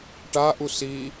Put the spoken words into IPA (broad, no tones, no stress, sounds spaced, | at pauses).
ʈ a ʔ u s i